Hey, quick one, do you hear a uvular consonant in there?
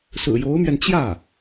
no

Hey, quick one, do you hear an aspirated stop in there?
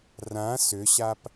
no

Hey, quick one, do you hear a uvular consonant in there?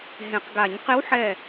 yes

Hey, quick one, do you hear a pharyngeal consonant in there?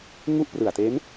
no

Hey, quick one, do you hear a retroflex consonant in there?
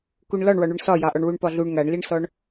yes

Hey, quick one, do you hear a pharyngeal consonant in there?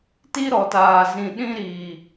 no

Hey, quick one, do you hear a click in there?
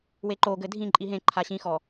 yes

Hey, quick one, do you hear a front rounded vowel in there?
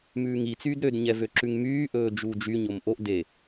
yes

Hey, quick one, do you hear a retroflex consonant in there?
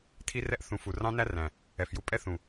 no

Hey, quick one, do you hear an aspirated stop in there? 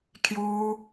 yes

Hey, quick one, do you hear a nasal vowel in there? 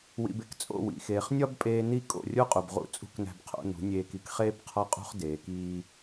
no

